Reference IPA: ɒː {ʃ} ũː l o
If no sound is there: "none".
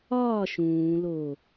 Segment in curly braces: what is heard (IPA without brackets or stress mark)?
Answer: ʃ